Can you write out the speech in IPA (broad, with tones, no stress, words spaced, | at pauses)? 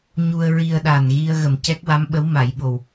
ɲu˧ə̯ɹi˧ə̯ɗa˨˩nɣi˧ə̯ ɣə˨˩mcɛ˦˥k̚wa˧˥mɓə˧˥w ma˨˩˦jɓo˨˩w